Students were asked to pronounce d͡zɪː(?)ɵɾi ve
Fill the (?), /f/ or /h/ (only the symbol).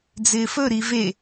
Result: f